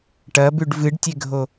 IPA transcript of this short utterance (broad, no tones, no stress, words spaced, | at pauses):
ʈɐbʉɖ vɨɖtʲeɡʱo